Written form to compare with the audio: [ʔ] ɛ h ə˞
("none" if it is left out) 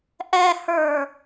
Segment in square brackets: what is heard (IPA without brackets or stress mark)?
ʔ